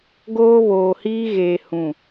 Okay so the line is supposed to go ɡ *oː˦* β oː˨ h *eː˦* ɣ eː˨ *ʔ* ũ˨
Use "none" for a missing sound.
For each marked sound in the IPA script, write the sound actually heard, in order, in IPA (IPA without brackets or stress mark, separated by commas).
oː˦, iː˦, h